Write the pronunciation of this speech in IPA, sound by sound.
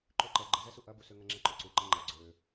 ǃ ø ǃ ɛ ɡ͡ǃ ə z ɛ s u ʔ ɐ b u s ø ŋ ɐ ŋ͡ǁ ɛ ǃ ʏ ǀ u ǃ ɛ ŋ͡ǃ ɐ ɡ͡ǀ ø

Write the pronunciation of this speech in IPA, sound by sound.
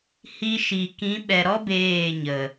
h i˧ ʃ i˨ k ĩ˨˦ ɓ ɛ˨ ɾ ɔ˦ b eː˦˨ ɲ ə˨

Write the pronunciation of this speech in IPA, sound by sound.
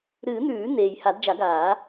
ɾ ɨː˨˩˦ n̪ ʉː˨˩˦ n̪ eː˨ j h a˨˩˦ d d͡ʒ a˨˩˦ ɡ aː˨˩˦

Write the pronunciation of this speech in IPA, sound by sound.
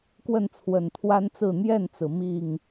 k w ə˥˨ n t͡sʰ w ə˨˩ n t̪ʰ w a˦ n t͡s ɹ̩˥˨ n̪ j ɛ˥˨ n t͡s ɹ̩˩ m i˥˨ ŋ

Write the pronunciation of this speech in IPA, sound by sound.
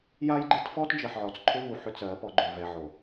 j a˦ j ɡ͡ǃ ɨ˦ t f ɔ˦ t d͡ʒ ɜ˨ ħ ʕ ɔ˨ t͡s ǃʰ ʏ˦ v u˨ ħ ʏ˦ t͡s ɜ˨˦ p ɔ˨˦ ɡ͡ǃ ʏ˨ v ɛ˨ ʕ o˨

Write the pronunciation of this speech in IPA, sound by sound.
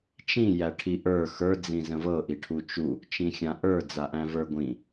t͡ʃ ĩ j æ ʈʰ i ʔ ə˞ x ə˞ d͡z ĩ z ə̃ v ɤ ʔ i ʈʰ u t͡ʃ u | t͡ʃ ĩ xʲ ã ʔ ə˞ d͡z a ʔ æ̃ v ə˞ ɡʷ ĩ

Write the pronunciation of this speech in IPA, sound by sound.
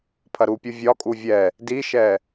pʰ ɐ ɾ u pʲ u vʲ ɒ kʼ u vʲ ɛ | d i ʃ ɛ

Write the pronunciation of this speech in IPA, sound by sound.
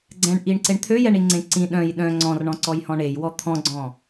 ɡ͡ǀ ɛ̃ ɳ ʔ i ɳ ǀ e ɳ t̪ʰ ø j ɛ ɳ i ŋ͡ǀ ẽ ǀ ĩ ɗ œ̃ j ɗ œ̃ ŋ͡ǀ ɔ̃ r ɳ ɔ̃ ǀ ɔ j h ɔ̃ ɳ e j w ɔ t̪ʰ ɔ̃ ɡ͡ǀ ɔ̃

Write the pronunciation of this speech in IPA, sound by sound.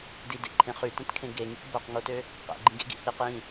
d i d ḛ ǃʰ ẽ χ y t ɛ̃ t kʰ ẽ ɡ e ŋ y kʷ b o q ŋ o t ø | q ɛ̰ ɡ͡ǃ ĩ ɡ ḛ ɡ ḭ h i q j ĩ

